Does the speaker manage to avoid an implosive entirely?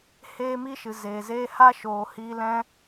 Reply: yes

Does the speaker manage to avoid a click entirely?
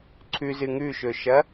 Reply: no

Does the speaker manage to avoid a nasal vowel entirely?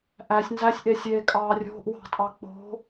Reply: yes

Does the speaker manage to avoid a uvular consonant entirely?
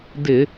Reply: yes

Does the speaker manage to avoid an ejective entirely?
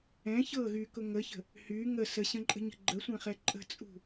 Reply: no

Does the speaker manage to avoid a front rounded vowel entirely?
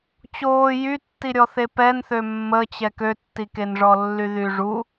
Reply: no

